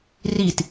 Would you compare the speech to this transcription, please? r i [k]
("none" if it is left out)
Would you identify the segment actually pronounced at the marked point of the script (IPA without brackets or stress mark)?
t